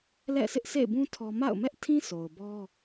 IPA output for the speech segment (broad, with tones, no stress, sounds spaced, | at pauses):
l ɛ̰˦˨ s ɪ˦ ʔ s ḛ˦˨ ɪ̯ b ũ˦ tʰ ɔ˦ m a̰˦˨ ʊ̯ m ɛ˦ ʔ tʰ ĩ˦ s o˨ ʊ̯ b ɔ˦